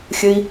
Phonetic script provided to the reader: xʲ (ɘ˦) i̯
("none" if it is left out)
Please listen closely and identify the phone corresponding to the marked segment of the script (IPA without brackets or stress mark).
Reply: ɘ˦